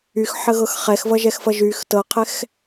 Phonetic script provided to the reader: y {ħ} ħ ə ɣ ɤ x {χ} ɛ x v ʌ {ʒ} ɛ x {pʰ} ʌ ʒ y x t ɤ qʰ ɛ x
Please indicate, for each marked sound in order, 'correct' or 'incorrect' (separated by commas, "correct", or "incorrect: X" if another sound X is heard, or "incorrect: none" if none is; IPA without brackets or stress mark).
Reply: incorrect: x, correct, correct, incorrect: f